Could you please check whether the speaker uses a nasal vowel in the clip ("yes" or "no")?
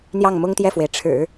no